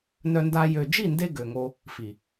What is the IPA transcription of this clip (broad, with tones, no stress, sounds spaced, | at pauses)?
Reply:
n œ˧ n d a˧ j ø˨ d͡ʒ i˦˨ n d e˧ ɡ ø˨ ŋ o˧ | f i˨